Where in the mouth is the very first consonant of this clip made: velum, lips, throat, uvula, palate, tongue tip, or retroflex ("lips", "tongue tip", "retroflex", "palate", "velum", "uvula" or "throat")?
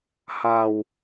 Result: throat